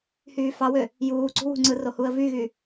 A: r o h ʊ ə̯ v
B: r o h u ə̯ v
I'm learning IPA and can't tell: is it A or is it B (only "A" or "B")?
B